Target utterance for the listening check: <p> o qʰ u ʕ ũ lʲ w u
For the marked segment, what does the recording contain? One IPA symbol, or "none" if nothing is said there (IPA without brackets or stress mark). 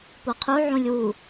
p